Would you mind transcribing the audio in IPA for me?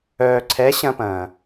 œː˨ ǀʰ ɛ˨˦ ɕ ɐ̃˦ p ɐ̃ː˨

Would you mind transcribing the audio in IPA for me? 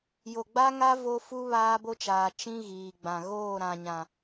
j o˨ ɡ͡b a˦ ŋ a˦ v o˦ f u˦ β aː˦ b o˦ t͡ʃ aː˨ t͡ʃ ĩ˦ ɣ iː˨ ɡ͡b ã˨ ɣ oː˦˨ ɾ ã˨ ɲ ã˨

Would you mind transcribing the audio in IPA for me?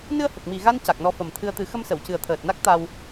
n ɨ˧ ə̯ h ə˨˩ k̚ m i˨˩ ɣ a˧ n c a˨˩ k̚ n ɔ˧ f ə˨˩ m t̪ʰ ɨ˧ ə̯ t̪ ɨ˨˩˦ x ə˧ m s ə˨˩˨ w c ɨ˨˩ ə̯ t̪ʰ əː˨˩ t̚ n a˦˥ k̚ t̪ a˧ w

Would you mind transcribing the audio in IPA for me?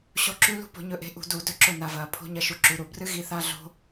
ɕ o˦˥ ǁ ʉ˦˥ l ṳ˦˥ p o̤˩˥ ɲ ɵ˩˥ ʔ e̤˩˥ ʔ ṳ˧˩˧ d u˧˩˧ d ɵ˦˥ ǁ ɵ˧˩ n a˩˧ v ɐː˩˧ pʰ o̤˧˥˧ ɲ ɐ˦˥ ʃ u˩˧ ǁ ʉ˩˧ ɾ u˧˩˧ b r ɨ˦˥ ɣ i˩˥ θ a˧˥˧ ɮ o̤˦˥

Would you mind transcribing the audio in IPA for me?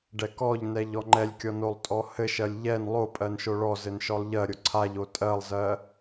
ɖ ɛ k ɔ ʎ n ɛ ʎ ɔ ŋ͡ǃ ɛ lʲ kʲ ɔ n o lˠ tʼ ɔ h ɘ ʃ ɜ lʲ ʎ ɛ n lˠ o pʼ ɜ n ʃ o ɭ ɔ z ɘ n ʃ ɔ lˠ ʎ ɜ ɾʲ o ǀʰ a ʎ o tʼ ɜ lˠ z ɜ

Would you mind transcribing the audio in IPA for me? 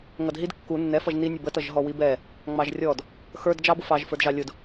ŋ ʌ d ɦ i d kː u nː ɛ f ʌ ʒ n i nʲ ʊ b ə t ʌ ʒ ɦ ɔ w i b ɛ | ŋ͡m ɑ ʒ rʲ ɔ d | x ə˞ d d͡ʒ ɑ b ʊ f ɑ ʒ f ə˞ d ʒ ɑ lʲ ʊ d

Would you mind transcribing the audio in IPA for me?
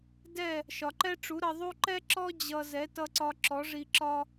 d ɛ˥˩ | ʃ ɒ˩ ǃ ɛ˥ ʈ͡ʂ u˩˥ ɾ ʌ˧ ðˤ u˥ ǃ ɛ˥ ǁ ɔ˥ d͡ʑ ʌ˧ z ɛ˩˥ t ʌ˧ ǀ ɒ˧ ǁ ɔ˩˥ ʐ i˧ ǁ ɒ˥

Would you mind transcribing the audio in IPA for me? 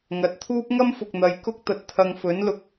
ŋ ɐ˨ t̚ t̪ʰ uː˥ p̚ ŋ ɐ˥ m f ʊ˨ k̚ n̪ ɐ˨ j k ʊ˥ k̚ t̪ ɐ˨ t̚ t̪ʰ ɐ˧ ŋ f ɵ˨˥ n l ʊ˨˥ k̚

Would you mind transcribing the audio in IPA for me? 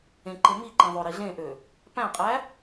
ẽ ǃ e m i ǃ ẽ ðˤ ø ɾ i ɮ ẽ ʔ ø | p æ̃ qʼ æ

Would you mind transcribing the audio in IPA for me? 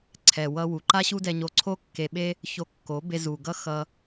ǀʰ ɛ˨ w ʌ˧ w u˨ ǃ a˦ ɕ u˦ d ɛ˧ ɲ o˧ ǀʰ o˦ kː e˧ ɓ e˦ | ç o˧ kː o˨˦ b e˧ z u˨ ɡ ʌ˦ x ʌ˧

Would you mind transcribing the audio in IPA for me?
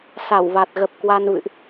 s a˧˩ w v a˨˩ t̚ ɣ ə˨˩ p̚ k w a˧ n v ɨ̰˧˨ ʔ

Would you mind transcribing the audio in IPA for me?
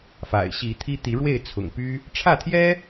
f a̰˨˩ ɪ̯ ɕ i˨˦ t̪ʰ i˦ t̪ i˨˦ ɻ w e˥˨ ɪ̯ t͡sʰ ʊ̰˨˩ ŋ p y˦ | ʈ͡ʂʰ ä˥˨ t̪ʰ j ɛ˦

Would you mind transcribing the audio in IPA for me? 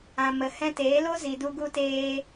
ã˨ m ə˨ h ɛ̃˧ t eː˨˦ l o˦ z i˨ d u˧ ɡ u˧ t eː˧

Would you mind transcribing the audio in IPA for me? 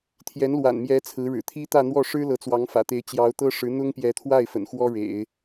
t̪ʰ j ɛ˧˥ n l w a̰˨˩ n m j ɛ˧˥ t͡sʰ ɹ̩˧˥ ɻ ɻ̩˨˩ t̪ʰ i˥ t̪ ä˥˧ n̪ w ɔ˥˩ ʂ ɻ̩˥ l ɤ˧˥ t͡s w ɑ˧˥ ŋ f ä̰˨˩ t̪ e˧˥ ɪ̯ t͡ɕ j ɑ˧˥ ʊ̯ t̪ ɤ˥ ʂ ɻ̩˧˥ n̪ ʊ˥ ŋ p j ɛ˧˥ t̪ʰ w a˥˩ ɪ̯ f ə̰˨˩ n x w ɔ˥ ɻ ḛ˨˩˦ ɪ̯

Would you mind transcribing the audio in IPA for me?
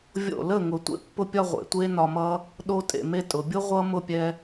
vʲ o̰˦˨ l ə˦˨ ŋ ʊ˨ tʷ ḛ˦ pː ʊ˧ pʲ ɒ˧ ʁʷ ḛ˨ tʷ e˦ n ɒ˧ m ʌ˦ | ɗ o˧ tʼ ḛ˨ m e˧ tʼ ʊ˨ bʲ o˦ ʁʷ ʌ˦ m ʊ˦˨ pʲ ɛ˧

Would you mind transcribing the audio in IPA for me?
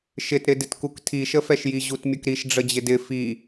ʃ ɪ t ɾ ɪ d ɪ t k u k tʰ i ʃ ə f ɛ ʃ j i ʑ u t mʲ ʊ k ɾ i ʃ ɖ͡ʐ ə d͡ʑ ɪ d ɪ f i

